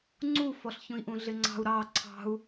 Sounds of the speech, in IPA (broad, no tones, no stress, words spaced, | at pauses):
ŋ͡ǀufɔɬ çũi̯ʔũɮɪŋ͡ǀɑ̤u̯ ɾɑ ǀʰɑ̤u̯